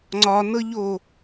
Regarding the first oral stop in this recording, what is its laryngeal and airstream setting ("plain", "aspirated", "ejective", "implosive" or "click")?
click